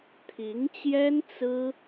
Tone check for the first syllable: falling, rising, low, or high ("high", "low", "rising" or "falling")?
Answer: rising